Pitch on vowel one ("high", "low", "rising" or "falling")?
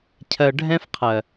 low